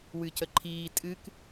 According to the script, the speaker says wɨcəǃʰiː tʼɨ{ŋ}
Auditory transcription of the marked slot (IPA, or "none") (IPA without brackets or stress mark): k